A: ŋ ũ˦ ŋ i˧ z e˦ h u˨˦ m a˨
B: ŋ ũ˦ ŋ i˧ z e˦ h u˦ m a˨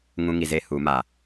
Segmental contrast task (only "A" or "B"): A